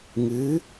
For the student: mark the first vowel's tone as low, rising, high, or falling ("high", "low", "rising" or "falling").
rising